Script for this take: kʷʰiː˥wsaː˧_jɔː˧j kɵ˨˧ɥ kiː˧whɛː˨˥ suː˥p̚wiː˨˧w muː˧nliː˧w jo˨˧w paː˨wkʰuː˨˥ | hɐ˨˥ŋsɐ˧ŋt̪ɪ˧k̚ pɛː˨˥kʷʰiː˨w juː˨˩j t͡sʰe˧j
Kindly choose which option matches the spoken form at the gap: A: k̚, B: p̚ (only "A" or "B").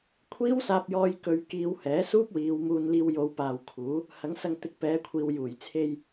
B